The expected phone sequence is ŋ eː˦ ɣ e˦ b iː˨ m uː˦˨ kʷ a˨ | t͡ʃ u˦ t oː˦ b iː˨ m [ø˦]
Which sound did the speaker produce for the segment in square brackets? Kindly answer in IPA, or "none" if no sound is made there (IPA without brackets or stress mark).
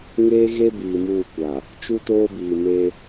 e˦